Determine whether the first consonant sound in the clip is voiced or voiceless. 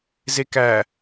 voiced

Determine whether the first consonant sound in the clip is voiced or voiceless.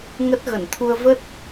voiced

